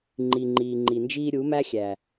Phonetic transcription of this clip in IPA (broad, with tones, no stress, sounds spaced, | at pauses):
ŋ͡ǃ i˨ ŋ͡ǃ iː˨ ŋ͡ǃ i˨ n d͡ʒ iː˦ ɾʲ u˨˦ m æ˦ xʲ æ˨